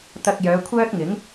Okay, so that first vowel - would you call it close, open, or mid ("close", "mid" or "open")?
open